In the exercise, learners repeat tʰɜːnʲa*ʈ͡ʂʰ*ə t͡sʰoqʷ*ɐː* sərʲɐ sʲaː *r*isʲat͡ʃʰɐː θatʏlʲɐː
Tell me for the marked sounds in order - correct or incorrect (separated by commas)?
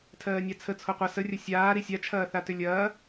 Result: incorrect, incorrect, incorrect